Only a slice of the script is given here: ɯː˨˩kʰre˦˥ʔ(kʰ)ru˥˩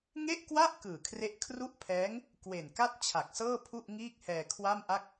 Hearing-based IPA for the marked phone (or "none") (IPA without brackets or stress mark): kʰ